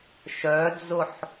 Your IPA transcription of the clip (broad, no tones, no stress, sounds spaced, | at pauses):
ʃ œ d͡z ʊ ħ